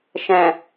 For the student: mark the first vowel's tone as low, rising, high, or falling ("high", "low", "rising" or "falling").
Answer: low